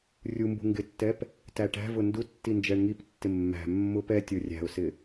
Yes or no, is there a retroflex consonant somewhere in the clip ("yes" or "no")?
yes